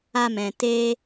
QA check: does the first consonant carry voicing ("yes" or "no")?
yes